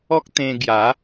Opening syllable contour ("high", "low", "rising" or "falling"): high